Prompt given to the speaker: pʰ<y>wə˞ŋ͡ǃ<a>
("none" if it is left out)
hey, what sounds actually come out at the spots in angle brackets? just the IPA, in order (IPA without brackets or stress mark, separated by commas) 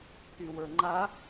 y, a